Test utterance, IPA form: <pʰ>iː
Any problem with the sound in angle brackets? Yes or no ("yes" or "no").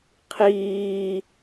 yes